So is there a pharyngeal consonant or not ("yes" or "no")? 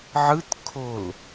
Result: yes